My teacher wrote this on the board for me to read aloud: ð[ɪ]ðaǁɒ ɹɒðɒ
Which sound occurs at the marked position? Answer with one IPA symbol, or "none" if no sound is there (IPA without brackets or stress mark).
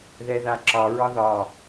ɛ